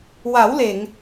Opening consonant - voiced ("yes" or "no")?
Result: yes